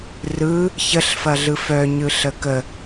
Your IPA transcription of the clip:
r ɯ | ç ə ɬ f ɐ ɮ ɯ f œ ɲ ɯ ɬ ə k ə

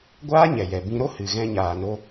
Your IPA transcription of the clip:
ɡʷ aː˦ ɲ ɛ˨ j ɛ˨ b ĩ˧ ɾ o˦ h ɨ˨ ɣ ɛ̃˧ ɲ aː˨ n o˧

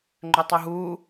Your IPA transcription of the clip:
ŋ͡ǃ ø tˤ u ɦ uː

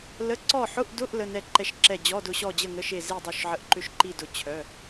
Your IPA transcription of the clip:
l ə˧˥˧ ǀ ɔ˦˨ ħ ʊ˧˥˧ ʔ d ʊ˧˥˧ ʔ l ə˧˥˧ n ɛ˦˨ ǃ ɛ˦˨ ʃ ǁ ɛ˦˨ d͡ʑ ɔ˧˥˧ d ʊ˦˨ ɕ ɔ˦˨ d͡ʑ ə˦˨ ŋ ə˧˥˧ ʃ e˦˨ z i˦˨ dˤ œ˦˨ ʃ ʕ ə˧˥˧ ʔ ǃ ʏ˦˨ ʃ ǃ i˦˨ d ʊ˦˨ t͡ɕʰ œ˧˥˧

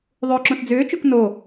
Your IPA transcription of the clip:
ðˤ ʏː ǁ õ s d͡z ʏː t͡ʃ o k n o

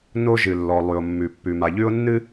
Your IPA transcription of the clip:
n o˦ ʒ ɨ˨ lː ɔ˨ lˠ ʉ˨ ʊ̯ mː ʉ˨ pː ʉ˨ m a˨ ʎ ʉ˦ ʊ̯ nː ɨ˦

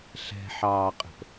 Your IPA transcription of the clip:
ɬ ɛ̤ ħ ɑː qʼ ə̤ p

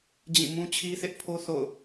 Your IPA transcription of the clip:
d͡ʑ ĩ˦˨ m ũ˦ t͡ɕʰ i˦ θ ɪ˦ ʔ pʰ o˦ θ o̰˦˨ ʊ̯

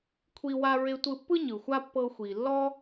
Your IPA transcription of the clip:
kʷʰ i˧ w a˧ ɹ e˧ tʷ ɯ˧ pː ɯ˥ ɲ ɯ˩ xʷ a˥ pː ɤ˧ xʷ i˩ lː ɔ˥

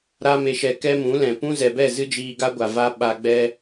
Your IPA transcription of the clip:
ɾ a˦ m e˧ ʃ ɛ˧ k ɛ˦ m ũ˨˦ l ɛ̃˨ p ũ˦ z ɛ˨ b ɛ˦˨ z ɨ˦ d͡ʒ iː˧ ɡ a˦ ɡʷ a˨ v a˦ ɓ a˧ ɡ͡b ɛ˦

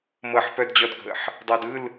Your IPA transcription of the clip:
m ɤ˥˧ ħ p œ˥ d d͡ʑ ɔ˥ d ɡʱ ə̰˧˩ ħ | dˤ e˧ d ɯ˥˧ l

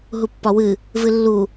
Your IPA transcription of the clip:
ɦ u pː ɒ w ɨ | v ɨ lː u

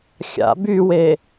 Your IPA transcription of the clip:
xʲ a̰ b y w e

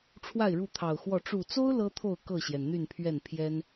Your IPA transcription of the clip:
ʈ͡ʂʰ w a˥˨ ɪ̯ ɻ u˥˨ t̪ʰ ɑ˨˩ ʊ̯ x w ɔ˥˨ ʈ͡ʂ u˨˩ t͡s o˦ ʊ̯ l ɤ˦ t̪ʰ o˥˨ ʊ̯ k ɤ˥˨ ɕ j ɛ˩ n n̪ y˥˨ n pʰ ɥ ɛ˥˨ n pʰ j ɛ˦ n

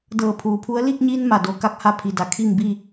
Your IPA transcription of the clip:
d ɤː˧˩ pʰ uː˩˧ pʰ u˧˥ ə̯ l i˥˨ k̚ ɲ i˧ n m a˧˩ d o˧ k a˧˥ k̚ h a˧ pʰ i˩ d a˩˧ kʰ i˥˨ ŋ b i˥˨

